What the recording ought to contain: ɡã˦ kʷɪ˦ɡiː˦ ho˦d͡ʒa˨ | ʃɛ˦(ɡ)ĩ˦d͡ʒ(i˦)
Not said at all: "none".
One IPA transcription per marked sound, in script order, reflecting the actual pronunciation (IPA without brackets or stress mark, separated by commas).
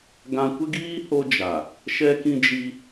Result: k, i˦